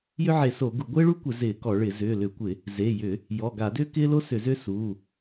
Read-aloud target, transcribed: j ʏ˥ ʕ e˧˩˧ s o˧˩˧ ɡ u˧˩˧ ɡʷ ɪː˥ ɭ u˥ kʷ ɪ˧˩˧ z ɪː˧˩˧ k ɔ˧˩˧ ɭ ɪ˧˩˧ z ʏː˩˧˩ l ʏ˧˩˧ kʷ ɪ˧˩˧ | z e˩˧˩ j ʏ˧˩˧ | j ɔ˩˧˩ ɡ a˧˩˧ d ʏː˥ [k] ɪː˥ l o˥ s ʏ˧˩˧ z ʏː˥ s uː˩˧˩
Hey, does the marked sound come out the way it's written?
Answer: yes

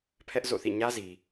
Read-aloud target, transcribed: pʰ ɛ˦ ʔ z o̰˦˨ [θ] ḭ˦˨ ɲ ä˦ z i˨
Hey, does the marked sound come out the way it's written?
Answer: yes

